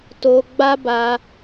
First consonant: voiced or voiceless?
voiceless